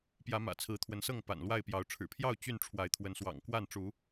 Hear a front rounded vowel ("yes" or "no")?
yes